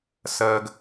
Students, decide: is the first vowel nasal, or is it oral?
oral